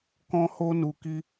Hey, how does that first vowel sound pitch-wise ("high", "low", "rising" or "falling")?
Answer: high